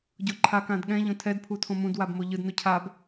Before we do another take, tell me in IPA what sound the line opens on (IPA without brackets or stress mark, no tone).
ɟ